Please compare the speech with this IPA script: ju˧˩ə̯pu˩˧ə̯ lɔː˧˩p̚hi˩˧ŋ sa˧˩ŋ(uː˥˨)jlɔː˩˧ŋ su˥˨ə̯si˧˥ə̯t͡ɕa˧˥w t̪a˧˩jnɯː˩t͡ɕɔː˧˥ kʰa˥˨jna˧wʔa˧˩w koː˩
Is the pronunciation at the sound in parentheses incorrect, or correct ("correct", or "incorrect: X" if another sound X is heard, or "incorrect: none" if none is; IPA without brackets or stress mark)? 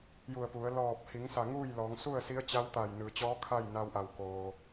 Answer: correct